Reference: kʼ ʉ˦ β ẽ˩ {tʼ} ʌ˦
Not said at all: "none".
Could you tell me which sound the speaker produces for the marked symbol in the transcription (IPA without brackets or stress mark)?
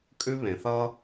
θ